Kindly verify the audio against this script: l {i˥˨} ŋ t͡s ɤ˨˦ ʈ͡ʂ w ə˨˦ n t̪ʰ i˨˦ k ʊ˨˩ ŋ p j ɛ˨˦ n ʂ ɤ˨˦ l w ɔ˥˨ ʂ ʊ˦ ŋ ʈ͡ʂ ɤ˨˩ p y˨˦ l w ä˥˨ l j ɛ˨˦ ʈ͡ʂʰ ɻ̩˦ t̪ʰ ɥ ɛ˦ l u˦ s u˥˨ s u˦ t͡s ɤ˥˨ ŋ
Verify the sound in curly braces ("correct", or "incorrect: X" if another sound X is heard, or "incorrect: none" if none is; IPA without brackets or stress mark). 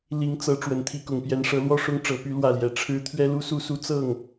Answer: incorrect: i˨˦